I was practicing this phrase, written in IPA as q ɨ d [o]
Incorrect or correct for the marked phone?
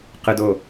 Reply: correct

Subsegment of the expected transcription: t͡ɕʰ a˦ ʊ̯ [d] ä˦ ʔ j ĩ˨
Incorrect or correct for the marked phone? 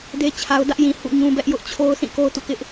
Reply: correct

